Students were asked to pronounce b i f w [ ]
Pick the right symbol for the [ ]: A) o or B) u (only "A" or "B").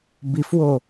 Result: A